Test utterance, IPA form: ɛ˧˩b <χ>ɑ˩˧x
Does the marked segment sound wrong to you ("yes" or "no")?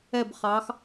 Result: no